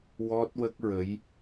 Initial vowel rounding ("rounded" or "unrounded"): rounded